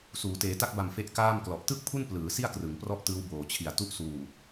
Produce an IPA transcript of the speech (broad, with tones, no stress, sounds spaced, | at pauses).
s uː˩˦ t eː˩˦ t a˦˥ k̚ b a˨˩ m f e˦˥ ʔ k aː˥˩ m k l ɔ˨˩ ʔ t ɯ˥˩ k̚ pʰ u˥˩ n p l ɯː˩˦ s i˥˩ a̯ k r ɯ˩˦ ŋ p r ɔ˥˩ ʔ t ɯː˦˥ w b oː˨˩ t͡ɕʰ i˨˩ a̯ t u˥˩ ʔ s uː˨˩